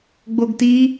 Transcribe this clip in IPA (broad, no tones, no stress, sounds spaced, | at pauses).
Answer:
ɡ͡b o ɡ t i